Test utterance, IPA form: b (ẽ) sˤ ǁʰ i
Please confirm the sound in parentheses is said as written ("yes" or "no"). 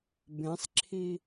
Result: yes